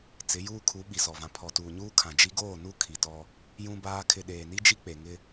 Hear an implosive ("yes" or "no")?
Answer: yes